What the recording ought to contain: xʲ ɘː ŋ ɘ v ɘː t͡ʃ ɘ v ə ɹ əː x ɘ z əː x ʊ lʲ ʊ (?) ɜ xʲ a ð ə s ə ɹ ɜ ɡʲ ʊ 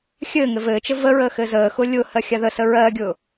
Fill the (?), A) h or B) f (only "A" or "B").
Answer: A